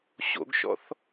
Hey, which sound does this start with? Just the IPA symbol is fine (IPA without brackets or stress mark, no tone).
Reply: ɕ